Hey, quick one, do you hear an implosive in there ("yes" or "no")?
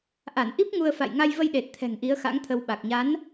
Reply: yes